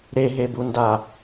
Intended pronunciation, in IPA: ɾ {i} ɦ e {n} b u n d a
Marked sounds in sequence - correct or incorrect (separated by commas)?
incorrect, incorrect